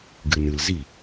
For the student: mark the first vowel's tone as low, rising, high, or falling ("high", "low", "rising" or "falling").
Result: low